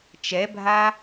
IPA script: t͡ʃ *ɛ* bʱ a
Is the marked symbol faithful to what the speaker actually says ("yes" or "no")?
yes